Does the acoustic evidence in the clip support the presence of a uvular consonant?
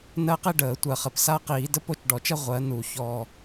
yes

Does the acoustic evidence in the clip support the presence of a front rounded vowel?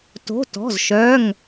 yes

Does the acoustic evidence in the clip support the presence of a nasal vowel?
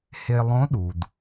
yes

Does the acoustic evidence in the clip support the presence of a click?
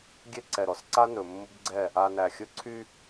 yes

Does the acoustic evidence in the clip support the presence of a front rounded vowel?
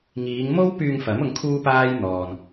yes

